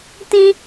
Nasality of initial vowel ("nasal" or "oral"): nasal